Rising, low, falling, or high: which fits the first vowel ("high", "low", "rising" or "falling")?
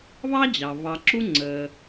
high